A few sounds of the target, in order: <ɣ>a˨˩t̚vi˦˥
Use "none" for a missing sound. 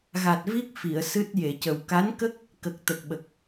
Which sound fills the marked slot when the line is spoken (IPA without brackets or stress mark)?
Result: ɣ